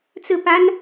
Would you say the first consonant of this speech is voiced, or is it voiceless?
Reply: voiceless